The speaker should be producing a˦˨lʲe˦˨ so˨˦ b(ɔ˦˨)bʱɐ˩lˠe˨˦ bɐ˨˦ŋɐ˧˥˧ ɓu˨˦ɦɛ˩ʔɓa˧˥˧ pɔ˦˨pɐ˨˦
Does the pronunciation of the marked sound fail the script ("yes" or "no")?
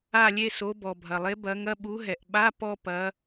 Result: yes